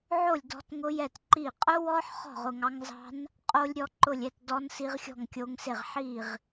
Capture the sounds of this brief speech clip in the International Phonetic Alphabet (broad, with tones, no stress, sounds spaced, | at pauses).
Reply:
ʕ o˥˨ lʲ d ɔ̤˦˥ t ŋ ʊ˦˥ j ɛ˥˨ t ǃ i˥˨ qʼ ʊ˦˥ w ɔ˦˥ ħ χ ɔ̤˥˨ ʁ ʊ˥˨ ŋ ɑ˦˥ ŋ z ɑ̤˦˥ n | qʼ o˦˥ lʲ ɾʲ ɔ˦˥ ǃ ʊ˥˨ lʲ ɛ˥˨ t d ɔ˦˥ n s i˦˥ ʁ xʲ ɔ̤˥˨ ŋ kʲ o˦˥ ŋ s e˥˨ ʁ ħ i˥˨ ʁ